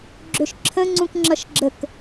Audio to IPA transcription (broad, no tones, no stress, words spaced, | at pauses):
ɡ͡ǁøʃǁʰə̃ ŋ͡ǀũkŋ͡ǁʌʃɡ͡ǁək